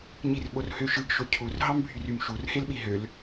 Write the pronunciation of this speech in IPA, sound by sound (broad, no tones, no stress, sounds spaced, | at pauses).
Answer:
ɲ i r ɓ o r h ø ʃ ɯ ɡ ʃ o cʰ u r ɦ ɑ m bʱ y r y m ʃ u r h e l ɓ i ɦ ø l